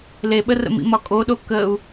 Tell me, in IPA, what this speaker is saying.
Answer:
leɓərə̰mḭ mɒkʼoɗo kəu̯

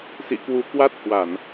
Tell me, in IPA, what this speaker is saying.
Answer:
sḭ˧˨kwu˨˦kwa˦˥t̚ hwa˧˩˨n

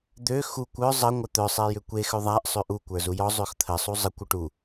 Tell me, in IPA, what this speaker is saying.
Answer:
d̪ø xukʷ œ zˤə ŋʷœt̪œ sˤejʏkʷe xøðˤaʔ sˤøʔu kʷə˞zujɔ zˤøxt̪ʰə sˤuzˤəkʷ uʈu

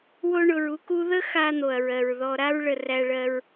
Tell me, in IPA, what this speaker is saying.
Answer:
wo˥ɳʊ˧ɹu˧ku˥ ðə˥xa˧n̪o˩ɐ̯ɹɜ˩ɹ ðɔ˧ ɾa˥ɹɭə˧ ræ˧ɭɜ˧ɹ

